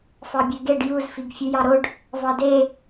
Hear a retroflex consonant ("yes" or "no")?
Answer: yes